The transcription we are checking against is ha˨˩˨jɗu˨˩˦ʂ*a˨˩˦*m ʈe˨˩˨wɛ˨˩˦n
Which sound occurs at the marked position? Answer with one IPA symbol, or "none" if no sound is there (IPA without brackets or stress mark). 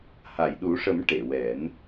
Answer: ə˨˩˦